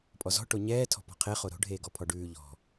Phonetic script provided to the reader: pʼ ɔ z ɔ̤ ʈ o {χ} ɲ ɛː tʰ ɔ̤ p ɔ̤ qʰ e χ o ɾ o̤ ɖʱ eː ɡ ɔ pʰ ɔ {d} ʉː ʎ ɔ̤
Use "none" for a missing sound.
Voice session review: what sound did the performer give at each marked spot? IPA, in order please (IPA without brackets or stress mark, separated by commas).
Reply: none, ɖ